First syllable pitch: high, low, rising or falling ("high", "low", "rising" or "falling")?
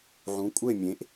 rising